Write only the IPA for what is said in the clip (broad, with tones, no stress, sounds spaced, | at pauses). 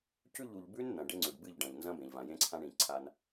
c ʉ˦˨ ʎ u˨ ʎ b ʉ˦ n n̪ ɐ̃˨ ɖ e˦ ŋ͡ǀ ʉ˨ ɖ b ɨ˦˨ ʎ ɖ ɐ̃˨ ʎ n z ɐ̃˦ b ẽ˨ ʎ v ã˨ j ẽ˦ ǀʰ ã˦ ɳ ĩ˨ ǀʰ a˦ n